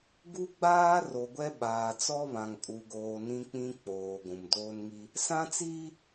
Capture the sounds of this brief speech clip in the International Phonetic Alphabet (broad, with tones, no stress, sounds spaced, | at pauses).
ɡ u˦ ɡ͡b aː˦ r o˨ ɡʷ ɛ˦ ɓ aː˨ t͡s ɔ˦ β ã˨ ŋ kʼ u˨ ɡ oː˨ n ĩ˦ k͡p ĩ˦ k͡p oː˨ ɡʷ ũ˨ m d oː˦ n ŋ i˦ | s ã˦ t͡s iː˦